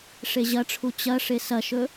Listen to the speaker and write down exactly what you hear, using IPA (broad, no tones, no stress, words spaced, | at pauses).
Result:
ʂeʑɐʈ͡ʂʰu t͡ɕɐʂe sɐʃɵ